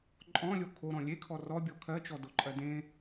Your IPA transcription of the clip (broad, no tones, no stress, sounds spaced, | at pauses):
ǃʼ ɔ̃ lʲ o kʰ o ɾ ɔ̃ lʲ e kʰ ɔ r ɔ bʲ ɔ kʰ ɜ t͡ʃ ɔ d o ǃʼ ɜ d ẽ